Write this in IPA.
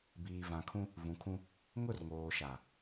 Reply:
biː˨vã˨kʰũ˦ | vũ˨kʰũ˦ | ŋʊ˦˨rŋoː˨ʃa˨

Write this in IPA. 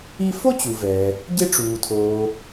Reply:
i˦ fo˥t͡ɕu˩vɛː˩ | ɟe˦ʈ͡ʂuː˩tʰoː˩

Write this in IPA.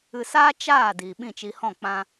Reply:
ɨ˧saː˦ t͡ʃaː˦˨ diː˨ɓĩ˦˨t͡ʃi˧hɔ̃˦˨ k͡pã˦

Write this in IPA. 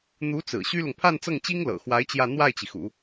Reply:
n̪u˧˥t͡sɹ̩˨˩ ɕy˥lʊ˨ŋ pʰa˥˧nt͡sɤ˥˩ŋt͡ɕi˥ŋlɤ̰˨˩ xwa˧˥ɪ̯ t͡ɕjä˥˧ n̪wa˥˩ɪ̯t͡ɕi˩xṵ˨˩˦

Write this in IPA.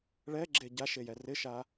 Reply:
ɭɛɡ͡ǁe ɟaʃejɛ rɪʃa

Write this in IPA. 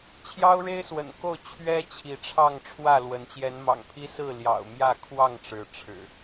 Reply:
t͡ɕʰjɑ˦ʊ̯ɻe˦ɪ̯swə̰˨˩nko˥˨ʊ̯ t͡ɕʰɥɛ˦ t͡ɕʰi˨˦ʈ͡ʂʰɑ˥˨ŋʈ͡ʂʰwä˥˨lwə˨˦n t͡ɕjɛ˨˦nmɑ̰˨˩ŋpʰi˦ sɹ̩˥˨ljɑ̰˨˩ʊ̯ mjä˥˨kʰwɑ˥˨ŋʈ͡ʂɻ̩˨˦ ʈ͡ʂʰɻ̩˨˩

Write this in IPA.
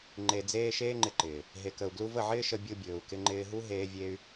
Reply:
ŋ͡ǃe˧d͡zeː˦ ʃeː˦ŋ͡ǃɪ˧ǃɪː˨ | ɦe˨kə˨u̯ɡlu˧və˦˨ ʕɪː˦ʃə˧ bʲu˧bʲɵː˨u̯kɪ˧ ŋ͡ǃɪː˧ɦu˦ ɦeː˦vʲe˦y̯

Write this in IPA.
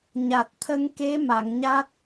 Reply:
ɲa˨˩t̚t̪ʰə˧ŋke˧˥ ma˨˩˨ŋɲa˦˥t̚

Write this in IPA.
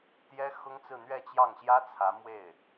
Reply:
t̪jɛ˥xʊ˥ŋt͡sɹ̩˥˧ n̪ɥɛ˥˧t͡ɕjɑ˥˩ŋɕjä˥ t͡sʰä˧˥mwe˥˩ɪ̯

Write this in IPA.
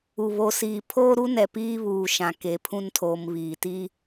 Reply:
u˨ βo˨siː˨ pʰoː˦ɾu˦nɛ˨ piː˦βuː˨ ʃã˨ke˨pʰũ˦ntʰoː˨m βiː˨ti˦

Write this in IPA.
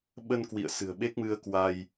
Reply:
ɓə˧nkwḭ˧˨ə̯ sɨ̤˨˩ə̯ɓe˦˥k̚mɨ˧ə̯kwa˧j

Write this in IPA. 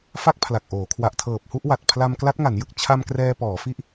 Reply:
fa˥˩k̚pʰla˨˩k̚ʔoː˩˦ kʰwa˨˩ʔtʰɤː˨˩p̚hu˥˩ʔ wa˨˩t̚pʰla˧m kla˦˥t̚ŋa˩˦njɯ˨˩k̚ t͡ɕʰa˧m krɛː˧pɔː˩˦fi˦˥ʔ

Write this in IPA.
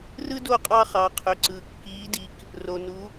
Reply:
rɯ˥do˥˩ qʼɑ˧χɑ˩ qʰø˩ǀɯː˩ kːiː˩˥di˩k | ro˩nu˩˥

